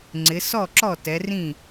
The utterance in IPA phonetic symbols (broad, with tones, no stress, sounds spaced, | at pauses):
ŋ͡ǀ ɪ˨˦ s ɔ˥˨ ǁ ɔ˥˨ t ɛ˨˦ r ĩ˥˨